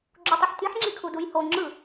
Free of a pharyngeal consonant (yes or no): no